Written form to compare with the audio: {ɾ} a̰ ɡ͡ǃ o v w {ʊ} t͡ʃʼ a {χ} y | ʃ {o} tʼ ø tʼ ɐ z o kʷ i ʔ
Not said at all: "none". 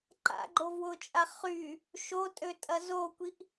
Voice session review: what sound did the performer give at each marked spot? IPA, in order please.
ǃ, ʊ, χ, o

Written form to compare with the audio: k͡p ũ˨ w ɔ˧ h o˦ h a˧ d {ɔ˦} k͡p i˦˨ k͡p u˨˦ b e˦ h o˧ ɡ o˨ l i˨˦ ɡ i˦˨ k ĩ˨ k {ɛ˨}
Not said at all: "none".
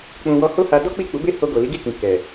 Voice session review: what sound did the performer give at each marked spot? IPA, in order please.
ɔ˦, ɛ˨

